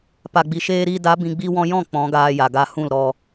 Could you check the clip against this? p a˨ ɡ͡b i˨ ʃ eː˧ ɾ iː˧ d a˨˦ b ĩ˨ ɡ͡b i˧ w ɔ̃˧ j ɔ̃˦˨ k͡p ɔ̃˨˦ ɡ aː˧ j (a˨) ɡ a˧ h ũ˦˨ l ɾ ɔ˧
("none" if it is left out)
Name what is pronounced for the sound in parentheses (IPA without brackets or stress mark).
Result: a˨